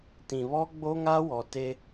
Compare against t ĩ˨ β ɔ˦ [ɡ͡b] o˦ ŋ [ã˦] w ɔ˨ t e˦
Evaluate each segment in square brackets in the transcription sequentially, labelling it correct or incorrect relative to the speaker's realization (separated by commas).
correct, incorrect